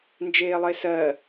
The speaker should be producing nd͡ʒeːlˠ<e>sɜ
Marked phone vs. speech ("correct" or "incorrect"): correct